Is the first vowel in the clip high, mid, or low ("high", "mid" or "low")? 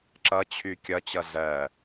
mid